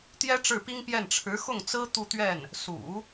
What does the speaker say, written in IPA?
t̪ j ɛ˥ ʈ͡ʂ ɻ̩˥˩ p i˥ ŋ p j ɛ˥˩ n ʈ͡ʂʰ ɻ̩˧˥ x ʊ˥˩ ŋ t͡s ɹ̩˥ t̪ u˥˧ t̪ ɥ ɛ˥˩ n | s ṵ˨˩˦

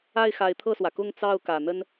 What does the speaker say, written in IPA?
a˥˩ ɪ̯ x a˧˥ ɪ̯ t̪ʰ ɤ˥˩ s w ä˩ k ʊ˥˧ ŋ t͡s ɑ˥˩ ʊ̯ k ä˨˩ n̪ ə˥ n

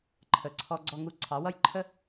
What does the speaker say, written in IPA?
ǃʰ ə˨ ǀʰ ɔ˧ ɡ͡ǀ ɔ˧ ŋ u˧ ǀʰ ɑ˨˦ w ʌ˦ j ǃʰ ə˦

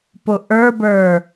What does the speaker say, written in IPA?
p ʊ ʔ ə˞ b ə˞

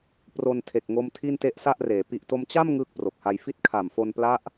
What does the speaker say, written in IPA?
p r o˧ n tʰ e˨˩ k̚ ŋ o˦˥ m tʰ i˥˩ n t e˦˥ ʔ s a˥˩ ʔ r eː˩˦ p i˨˩ ʔ t o˧ m t͡ɕ a˥˩ m ŋ ɯː˥˩ k̚ p r o˨˩ k̚ h a˧ j f i˦˥ t̚ kʰ a˨˩ m f o˧ n p l a˦˥ ʔ

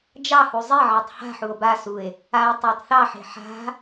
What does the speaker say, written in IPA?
d͡ʒ ɑ h u zˤ e ʕ e tˤ h a̤ ħ u o̯ b a s u e̯ | a o̯ tˤ a tˤ θ ɑ ħ e̤ ħ a̤

